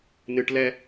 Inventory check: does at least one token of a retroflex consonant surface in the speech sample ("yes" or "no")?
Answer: yes